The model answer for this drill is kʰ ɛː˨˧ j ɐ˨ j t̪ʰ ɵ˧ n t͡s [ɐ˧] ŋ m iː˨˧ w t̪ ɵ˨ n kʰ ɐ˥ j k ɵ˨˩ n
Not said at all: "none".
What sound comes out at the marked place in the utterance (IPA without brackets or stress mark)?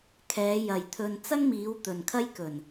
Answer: ɐ˥